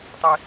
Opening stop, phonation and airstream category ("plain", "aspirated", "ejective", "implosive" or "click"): plain